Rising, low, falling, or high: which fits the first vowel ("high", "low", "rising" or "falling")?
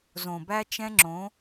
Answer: low